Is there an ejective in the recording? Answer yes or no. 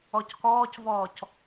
no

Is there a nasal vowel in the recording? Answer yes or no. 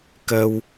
no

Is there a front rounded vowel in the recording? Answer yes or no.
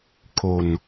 no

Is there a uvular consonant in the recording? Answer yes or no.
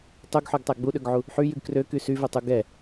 no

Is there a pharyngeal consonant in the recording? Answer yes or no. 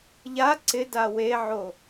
yes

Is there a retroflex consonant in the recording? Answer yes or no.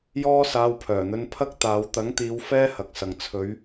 no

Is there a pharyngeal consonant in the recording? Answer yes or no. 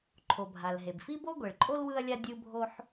yes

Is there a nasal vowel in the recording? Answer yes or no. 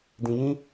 yes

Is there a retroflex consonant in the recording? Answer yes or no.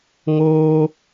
no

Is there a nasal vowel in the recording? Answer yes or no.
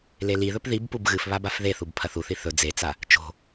no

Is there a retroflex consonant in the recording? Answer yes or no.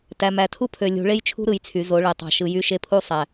yes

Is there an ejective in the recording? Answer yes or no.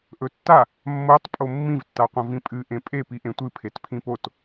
yes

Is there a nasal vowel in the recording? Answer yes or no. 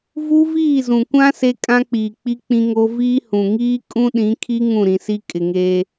yes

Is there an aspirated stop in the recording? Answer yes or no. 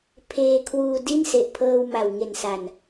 yes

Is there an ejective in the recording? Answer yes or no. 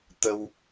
no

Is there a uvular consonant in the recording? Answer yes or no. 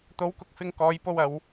no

